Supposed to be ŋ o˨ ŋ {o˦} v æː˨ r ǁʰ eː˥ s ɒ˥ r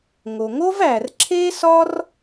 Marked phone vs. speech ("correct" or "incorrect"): incorrect